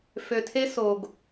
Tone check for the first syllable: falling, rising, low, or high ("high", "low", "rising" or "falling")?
low